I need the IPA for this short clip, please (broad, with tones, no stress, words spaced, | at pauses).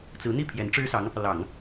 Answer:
t͡sɹ̩˧˥n̪i˥˩ pʰjɛ˧˥nʈ͡ʂɻ̩˥sɑ˧˥ŋ | lɑ˨˩˦ŋ